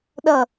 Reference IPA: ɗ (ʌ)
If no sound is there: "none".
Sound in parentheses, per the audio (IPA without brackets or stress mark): ʌ